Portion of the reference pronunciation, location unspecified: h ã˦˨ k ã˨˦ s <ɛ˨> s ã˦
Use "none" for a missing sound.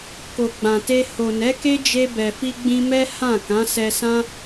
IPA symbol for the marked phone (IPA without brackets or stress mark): ɛ˧